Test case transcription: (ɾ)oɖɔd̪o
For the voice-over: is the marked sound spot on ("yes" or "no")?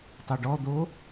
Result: no